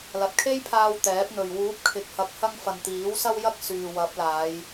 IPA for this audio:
lɐ˨t̚kʰe˥jpʰaː˧w t̪ɛː˨˥p̚n̪ɵ˨ɥ wuː˨˥p̚kʰɪ˨k̚hɐ˨˥k̚hɐ˧ŋ fɐ˨nt̪iː˨˥w sɐ˧wjɐ˧k̚ syː˨wɐ˨˥p̚laː˨˧j

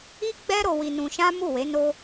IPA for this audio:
i˦ɡ͡bɛ˦ ɾo˧wi˧nũ˧ʃã˦ mu˦˨we˨˦ no˦

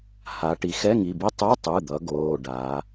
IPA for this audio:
ha˩˧ ʈi˩˧xɛ˧˥˧ŋi˩˧˩bi˦˥ tˤɯ˧˥˧tˤɯ˩˧˩d̪ʌ˩˧ ɡoː˩˧˩ɖa˩˧

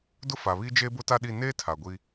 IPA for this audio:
dʊ˦ fa˨βi˦ d͡ʒeː˦bʊ˦ ta˦ɗi˦˨ neː˦ tʰa˨ɡʷi˦

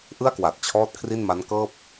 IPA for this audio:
ʔɯ˥˩a̯kwa˨˩t̚t͡ɕʰɔː˦˥t̚ kʰri˥˩nma˦˥nkɤː˥˩p̚

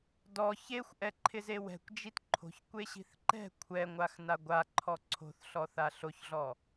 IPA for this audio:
dɔ çexʷʔɛǃʰɪze wɛ̤kʷd͡ʒit ǃʰo̤çkʷeɕi̤θ ǃɛ̤ kʷʰɛŋʷaxna ɡʷaǃʰɔ ǀʰo̤θɬɔθa ɬoçɮɔ

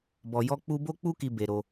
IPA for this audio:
bɔ˧ jɔ˦ k͡pu˦ bo˦k͡pu˦ki˧ be˧ɾo˧

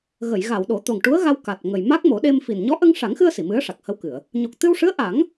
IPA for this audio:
ɣə˨˩˨jɣa˨˩˨w ɗo˨˩˦t̪o˨˩ŋʈu˧˥ə̯ɣa˧w ka˨˩t̚ŋə˨˩j ma˦˥k̚mo˨˩˦ɗe˧m fi˨˩n ɲɔ˧˥ʔə˧ŋʂa˨˩˦ŋxɨ˧ə̯ si˨˩˨mɨ˧˥ə̯ ʂa˨˩k̚hə˧wkɨ˨˩˨ə̯ | ɲo˨˩k̚t̪ɨ˧wʂɨ˧˥ə̯ ʔa˨˩˦ŋ

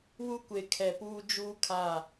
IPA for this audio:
wu˦kʷe˨ kʰɛ˨puː˦ d͡ʒuː˦kʰa˦˨

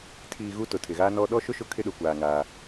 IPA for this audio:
tʰiː˨ ɣu˦tʊ˨tʰɪ˨ɣaː˦ nɔ˦ ɗɔ˦ʃʊ˦ ʃʊ˦kʰɪ˦ɗʊ˨kʷaː˨ ŋaː˦

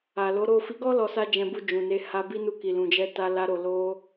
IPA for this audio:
a˨lo˨˦ɾo˦˨ fi˨˦ɡɔ˦ lɔ˧sa˦d͡ʒɛ̃˧ bu˧d͡ʒũ˨ne˧ ha˧bi˦ nu˧ki˨ lũ˨d͡ʒɛ˧ta˧la˧ ɾo˧ lo˦

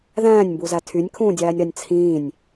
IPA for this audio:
ðæ̃ːnʲmbuzæ tʰynʲkʰũːdʲæːnʲɾɑnʲ t͡sʰĩːnʲ

